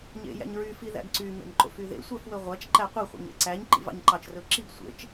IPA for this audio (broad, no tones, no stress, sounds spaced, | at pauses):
ɲ ḛ j æ̰ ɲ ɹ y f i ð æ̰ ɡ ǀ y m ḛ m ǃ o̰ f y ð ḛ sʷ æ f w ɵ ʁʷ æ t͡ʃ ǃ æ qʷ i χʷ ḭ ɲ ḛ ǀ æ ɲ ǃ ḭ v ɑ̰ ɲ ǃ ɑ t͡ʃ r ɵ ǁ i ɡ sʷ ḛ t͡ʃ